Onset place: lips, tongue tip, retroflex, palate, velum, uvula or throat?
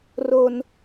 tongue tip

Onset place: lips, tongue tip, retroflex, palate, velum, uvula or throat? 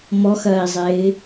lips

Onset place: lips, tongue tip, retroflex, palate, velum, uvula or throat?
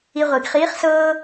uvula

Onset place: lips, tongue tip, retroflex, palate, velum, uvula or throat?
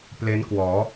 lips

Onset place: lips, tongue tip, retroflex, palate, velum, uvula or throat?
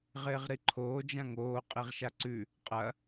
uvula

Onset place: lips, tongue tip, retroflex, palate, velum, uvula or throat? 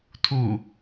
tongue tip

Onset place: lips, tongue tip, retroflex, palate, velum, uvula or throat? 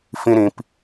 lips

